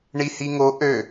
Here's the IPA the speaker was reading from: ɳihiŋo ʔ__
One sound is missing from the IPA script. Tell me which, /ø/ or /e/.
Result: ø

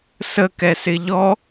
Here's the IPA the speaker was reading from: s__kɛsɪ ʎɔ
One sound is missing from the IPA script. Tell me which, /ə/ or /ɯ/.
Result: ə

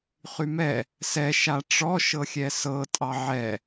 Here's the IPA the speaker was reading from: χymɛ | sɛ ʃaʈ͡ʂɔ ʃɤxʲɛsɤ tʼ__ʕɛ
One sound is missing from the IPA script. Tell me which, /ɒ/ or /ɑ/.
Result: ɑ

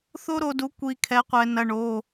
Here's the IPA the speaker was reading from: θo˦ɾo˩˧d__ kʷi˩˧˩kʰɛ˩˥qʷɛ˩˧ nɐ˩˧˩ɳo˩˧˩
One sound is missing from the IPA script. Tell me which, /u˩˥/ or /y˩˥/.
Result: u˩˥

